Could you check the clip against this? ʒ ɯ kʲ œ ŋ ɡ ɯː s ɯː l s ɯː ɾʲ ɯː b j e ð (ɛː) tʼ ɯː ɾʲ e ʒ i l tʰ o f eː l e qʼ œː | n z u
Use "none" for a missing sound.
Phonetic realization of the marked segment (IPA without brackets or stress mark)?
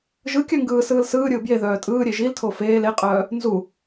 œː